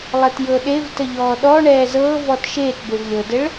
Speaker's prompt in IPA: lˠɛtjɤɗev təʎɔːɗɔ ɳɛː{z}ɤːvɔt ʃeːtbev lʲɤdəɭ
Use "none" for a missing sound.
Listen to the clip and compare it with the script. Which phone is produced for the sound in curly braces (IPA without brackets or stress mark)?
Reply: z